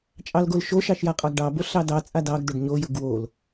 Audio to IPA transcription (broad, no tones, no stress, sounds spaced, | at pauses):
t͡ʃʼ ɑ l ɡ o l ʃ o ʃ ɑ ʃ j a qʼ ɑ ɡ ɖ ɑ b o ɬ ɑ d ɑ t͡sʼ a d ɑ ɡ d ʊ ɖ ɲ o j ʊ ɡ w o l